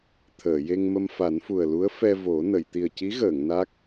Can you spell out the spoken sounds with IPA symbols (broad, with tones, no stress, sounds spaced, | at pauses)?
t̪ʰ əː˨˩˨ j e˧ ŋ m ə˧ m f a˨˩˦ n f u˨˩ ə̯ l u˧˥ ə̯ f ɛ˧ v o˨˩˦ n ə˨˩˨ j t̪ i˨˩ ə̯ c i˧˥ ɣ əː˨˩˨ ŋ n a˦˥ k̚